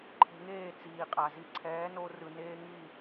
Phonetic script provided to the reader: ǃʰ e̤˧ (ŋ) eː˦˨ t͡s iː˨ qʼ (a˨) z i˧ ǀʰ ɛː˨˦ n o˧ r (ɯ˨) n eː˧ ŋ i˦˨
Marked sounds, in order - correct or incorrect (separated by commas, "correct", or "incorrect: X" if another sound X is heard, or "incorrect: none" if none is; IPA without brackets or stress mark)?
correct, correct, correct